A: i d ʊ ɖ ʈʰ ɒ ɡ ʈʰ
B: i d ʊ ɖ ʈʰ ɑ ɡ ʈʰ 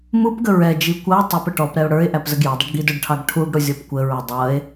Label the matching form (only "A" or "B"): B